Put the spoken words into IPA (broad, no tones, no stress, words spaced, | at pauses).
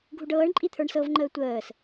ɡʱuɖɤːɳ ǃʼit̪ʰə˞ɳsɤv ŋ͡ǃəːtʷəːs